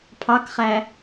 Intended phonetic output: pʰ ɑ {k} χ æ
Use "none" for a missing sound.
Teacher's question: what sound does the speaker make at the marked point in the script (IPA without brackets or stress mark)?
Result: k